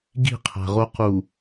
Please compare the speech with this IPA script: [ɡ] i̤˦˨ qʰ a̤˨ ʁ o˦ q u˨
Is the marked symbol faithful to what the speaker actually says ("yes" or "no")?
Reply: yes